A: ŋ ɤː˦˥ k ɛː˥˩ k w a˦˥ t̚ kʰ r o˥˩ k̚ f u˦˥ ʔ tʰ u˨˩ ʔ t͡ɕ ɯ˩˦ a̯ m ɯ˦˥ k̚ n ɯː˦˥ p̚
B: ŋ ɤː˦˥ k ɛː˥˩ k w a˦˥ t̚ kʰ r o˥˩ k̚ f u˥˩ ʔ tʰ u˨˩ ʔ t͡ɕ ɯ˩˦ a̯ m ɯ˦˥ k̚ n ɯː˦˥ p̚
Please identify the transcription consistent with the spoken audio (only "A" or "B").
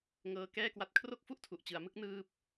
B